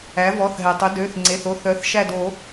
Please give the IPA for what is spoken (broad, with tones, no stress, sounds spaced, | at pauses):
æ˩˥ v ɔ˩˧˩ θ ɦ ɛ˩ tˤ ɵ˩˥ d ø˩˧˩ θ ŋ͡ǀ e˩˧˩ θ o˦ θ œ˩˥ θ ʃ æ˦˨ d o˨˩˦